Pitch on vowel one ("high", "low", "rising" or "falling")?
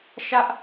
high